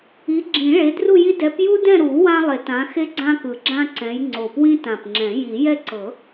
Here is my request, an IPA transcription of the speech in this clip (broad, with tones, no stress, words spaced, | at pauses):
i˨˦ɡ͡ǁĩ˨˩˦ ɭe˨˦dru˦˨ji˦ dɛ˨˦pju˦dɛ̃˦˨ɾu˨˩˦ wã˦lˠe˨˩˦tã˨˦ xe˦ɡ͡ǀã˦kɯ˨˩ ɡ͡ǁã˦ǀɛ̃˨˦j ŋ͡ǀo˨˩pwĩ˦tã˨˩pŋ͡ǁɛ̃˨˩˦ ji˨˩˦ jɛ˦ǀɤ˨˩˦